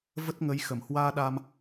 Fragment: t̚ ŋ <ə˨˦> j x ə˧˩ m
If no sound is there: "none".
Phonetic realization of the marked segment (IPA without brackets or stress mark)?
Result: ə˨˦